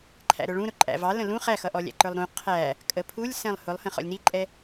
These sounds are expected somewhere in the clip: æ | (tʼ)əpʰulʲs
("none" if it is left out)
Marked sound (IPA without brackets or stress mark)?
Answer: kʼ